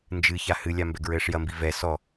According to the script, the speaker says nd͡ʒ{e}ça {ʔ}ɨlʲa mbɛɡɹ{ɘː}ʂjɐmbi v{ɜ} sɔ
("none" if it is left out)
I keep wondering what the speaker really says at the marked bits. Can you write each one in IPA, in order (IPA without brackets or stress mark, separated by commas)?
ɨ, h, ɘː, ɛ